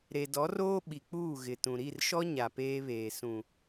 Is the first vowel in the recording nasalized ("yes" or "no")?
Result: no